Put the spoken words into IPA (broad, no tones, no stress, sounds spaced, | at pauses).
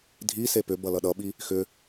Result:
dʱ i s e p ʏ b ʌ l ʌ ɗ ʌ ɓ i | x ʏ